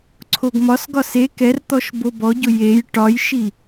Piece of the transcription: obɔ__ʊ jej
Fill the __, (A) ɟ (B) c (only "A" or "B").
A